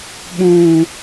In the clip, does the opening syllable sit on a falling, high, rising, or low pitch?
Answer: low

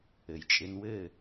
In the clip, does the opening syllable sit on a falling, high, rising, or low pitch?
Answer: low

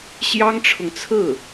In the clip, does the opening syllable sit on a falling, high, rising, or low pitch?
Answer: high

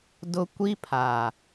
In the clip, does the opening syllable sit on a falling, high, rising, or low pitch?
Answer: high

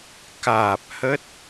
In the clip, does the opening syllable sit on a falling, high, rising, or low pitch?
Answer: low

